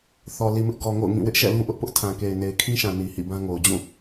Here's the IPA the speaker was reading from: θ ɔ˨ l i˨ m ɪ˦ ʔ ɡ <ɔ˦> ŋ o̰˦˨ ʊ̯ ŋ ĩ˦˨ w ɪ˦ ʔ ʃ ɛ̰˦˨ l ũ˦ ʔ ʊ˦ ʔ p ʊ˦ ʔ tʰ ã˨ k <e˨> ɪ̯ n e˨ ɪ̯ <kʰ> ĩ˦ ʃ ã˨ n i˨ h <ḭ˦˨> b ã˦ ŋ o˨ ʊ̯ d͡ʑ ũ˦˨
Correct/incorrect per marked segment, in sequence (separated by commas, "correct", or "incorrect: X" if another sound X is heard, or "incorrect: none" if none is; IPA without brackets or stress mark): incorrect: ɔ˨, correct, correct, correct